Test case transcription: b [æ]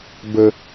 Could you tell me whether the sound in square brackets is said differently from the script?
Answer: yes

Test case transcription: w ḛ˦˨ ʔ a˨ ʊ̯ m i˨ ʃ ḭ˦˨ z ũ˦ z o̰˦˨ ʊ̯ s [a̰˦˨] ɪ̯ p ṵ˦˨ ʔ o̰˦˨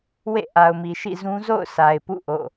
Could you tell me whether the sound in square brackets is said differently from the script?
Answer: yes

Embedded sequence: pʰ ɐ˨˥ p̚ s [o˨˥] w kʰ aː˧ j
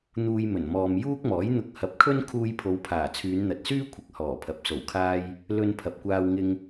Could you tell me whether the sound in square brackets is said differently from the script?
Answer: yes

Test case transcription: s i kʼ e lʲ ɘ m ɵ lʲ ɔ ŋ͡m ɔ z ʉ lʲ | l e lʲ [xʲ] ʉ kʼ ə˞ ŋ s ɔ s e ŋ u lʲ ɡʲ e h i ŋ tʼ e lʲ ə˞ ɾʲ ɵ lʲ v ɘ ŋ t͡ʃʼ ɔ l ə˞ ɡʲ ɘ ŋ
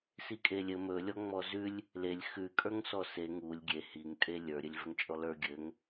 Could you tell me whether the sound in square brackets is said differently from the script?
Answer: yes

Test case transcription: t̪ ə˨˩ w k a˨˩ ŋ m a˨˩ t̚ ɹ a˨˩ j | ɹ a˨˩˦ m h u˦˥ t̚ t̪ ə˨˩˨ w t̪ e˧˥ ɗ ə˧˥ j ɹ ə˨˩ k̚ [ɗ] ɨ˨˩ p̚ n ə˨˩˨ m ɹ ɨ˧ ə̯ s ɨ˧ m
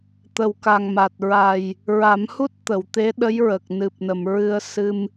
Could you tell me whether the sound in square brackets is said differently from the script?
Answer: yes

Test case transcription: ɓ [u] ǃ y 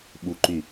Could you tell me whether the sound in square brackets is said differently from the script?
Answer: no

